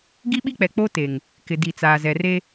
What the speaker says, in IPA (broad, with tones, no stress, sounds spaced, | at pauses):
ɡ i˦ ɓ i˦ k͡p ɛ˨ k͡p o˦ t e˨ ŋ | k ɪ˨ d i˨ t͡s aː˨ z ɛ˨ r e˦